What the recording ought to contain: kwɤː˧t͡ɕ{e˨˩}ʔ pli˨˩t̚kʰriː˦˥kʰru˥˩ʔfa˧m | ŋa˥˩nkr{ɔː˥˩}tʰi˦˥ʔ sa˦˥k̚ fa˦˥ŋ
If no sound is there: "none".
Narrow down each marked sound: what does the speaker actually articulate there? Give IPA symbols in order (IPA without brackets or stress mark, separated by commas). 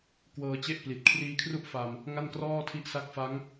e˦˥, ɔː˥˩